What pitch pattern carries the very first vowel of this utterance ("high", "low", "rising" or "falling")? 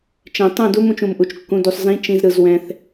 low